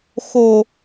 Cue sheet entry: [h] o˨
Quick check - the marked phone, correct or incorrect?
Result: incorrect